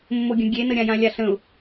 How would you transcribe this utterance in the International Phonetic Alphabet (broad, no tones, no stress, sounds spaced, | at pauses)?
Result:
mː o ɡʲ ə̃ ɡʲ e n ə ɾʲ ã j ã lʲ a ɬ ə̃ ʊ̯